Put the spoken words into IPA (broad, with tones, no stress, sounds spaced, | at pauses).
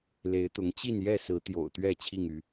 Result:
l e˨˦ ɪ̯ t̪ ʊ˨˦ ŋ t͡ɕ i˥˨ n j ɛ˥˨ s ɹ̩˨˦ t̪ j o̰˨˩ ʊ̯ t̪ ɥ ɛ˥˨ t͡ɕʰ i˥˨ ŋ y˨˦